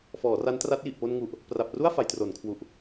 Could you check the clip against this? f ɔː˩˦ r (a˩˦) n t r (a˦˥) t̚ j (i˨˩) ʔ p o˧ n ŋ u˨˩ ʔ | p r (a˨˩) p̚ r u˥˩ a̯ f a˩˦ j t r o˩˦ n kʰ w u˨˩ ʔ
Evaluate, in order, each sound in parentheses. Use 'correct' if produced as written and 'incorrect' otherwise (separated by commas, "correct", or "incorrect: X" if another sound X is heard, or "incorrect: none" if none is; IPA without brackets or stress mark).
incorrect: a˦˥, correct, correct, correct